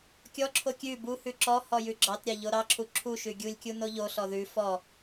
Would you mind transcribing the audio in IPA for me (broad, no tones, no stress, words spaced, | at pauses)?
kʲɔǁʰo kʲʉ buhʉ ǁɔ hɔjʉɡ͡ǁɑtɾʲɑ ʎoɾɑǁʰu ǁʰu ʃʉɡʲulʲkʲu noʎoɬɔ ðʉ fɔ